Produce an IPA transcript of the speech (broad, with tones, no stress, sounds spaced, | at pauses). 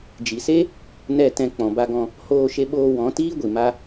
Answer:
d͡ʒ i˨ s e˦ | n ɛ˦˨ t ɛ̃˧ k͡p ɔ̃˨ b a˧ ɡ ɔ̃˧ | h oː˧ ʃ e˧ ɓ oː˧ w ɔ̃˨˦ t iː˦ ɡʷ i˨ m a˧